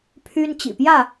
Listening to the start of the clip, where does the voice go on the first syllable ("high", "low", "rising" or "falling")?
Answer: high